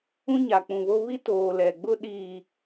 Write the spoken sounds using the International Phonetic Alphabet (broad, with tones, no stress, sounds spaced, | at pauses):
ũ˦ ɲ a˨ k͡p ũ˨ β o˦ β i˦ t oː˨ l ɛ˨ ɡ͡b ʊ˦ ɗ iː˨